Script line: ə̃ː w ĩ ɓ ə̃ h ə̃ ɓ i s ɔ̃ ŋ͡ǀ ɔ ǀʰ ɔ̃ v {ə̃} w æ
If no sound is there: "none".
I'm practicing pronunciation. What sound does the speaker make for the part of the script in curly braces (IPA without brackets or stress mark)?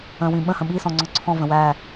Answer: ə̃